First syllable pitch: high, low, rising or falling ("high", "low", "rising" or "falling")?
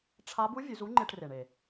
rising